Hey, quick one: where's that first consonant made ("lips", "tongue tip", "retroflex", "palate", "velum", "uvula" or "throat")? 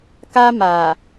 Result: velum